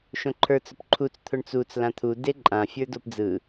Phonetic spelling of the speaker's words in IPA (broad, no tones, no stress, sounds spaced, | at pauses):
ʃ õ ǃʰ ə˞ t͡s ʊ p ǃʰ u t͡s t̪ʰ ʊ ɳ t͡s u t͡s l ã t̪ʰ u d e ǃʼ ã fʲ ə˞ d o p d͡z ɯ